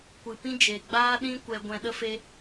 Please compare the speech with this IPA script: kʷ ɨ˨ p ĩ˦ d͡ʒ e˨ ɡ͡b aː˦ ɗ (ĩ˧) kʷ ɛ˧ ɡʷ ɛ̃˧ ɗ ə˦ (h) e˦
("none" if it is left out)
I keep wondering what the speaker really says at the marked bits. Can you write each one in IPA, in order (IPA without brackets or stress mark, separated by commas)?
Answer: ĩ˦, f